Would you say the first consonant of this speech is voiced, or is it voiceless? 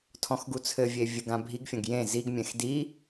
voiceless